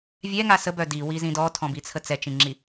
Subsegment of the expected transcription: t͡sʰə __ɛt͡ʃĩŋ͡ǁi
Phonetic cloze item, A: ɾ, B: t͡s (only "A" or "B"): B